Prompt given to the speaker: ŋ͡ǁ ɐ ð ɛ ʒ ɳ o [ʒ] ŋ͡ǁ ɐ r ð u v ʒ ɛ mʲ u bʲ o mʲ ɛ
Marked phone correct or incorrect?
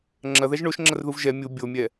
incorrect